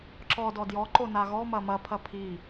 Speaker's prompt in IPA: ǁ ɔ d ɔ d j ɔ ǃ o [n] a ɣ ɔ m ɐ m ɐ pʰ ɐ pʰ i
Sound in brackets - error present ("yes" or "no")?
no